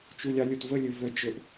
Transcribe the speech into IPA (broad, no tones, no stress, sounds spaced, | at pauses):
t͡ʃ u lʲ ɑ lʲ o t v ə lʲ ɵ v œ d͡ʒ ɵ ʔ